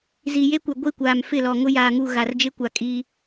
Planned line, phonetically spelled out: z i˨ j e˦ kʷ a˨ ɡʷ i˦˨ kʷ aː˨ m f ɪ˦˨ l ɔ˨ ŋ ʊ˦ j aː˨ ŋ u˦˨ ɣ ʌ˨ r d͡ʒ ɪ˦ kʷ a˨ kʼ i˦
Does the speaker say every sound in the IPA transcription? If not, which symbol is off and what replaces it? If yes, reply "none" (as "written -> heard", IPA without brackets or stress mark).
ʌ˨ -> a˨